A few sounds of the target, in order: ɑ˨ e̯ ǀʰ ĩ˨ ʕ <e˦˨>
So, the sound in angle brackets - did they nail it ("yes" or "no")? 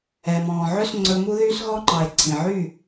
no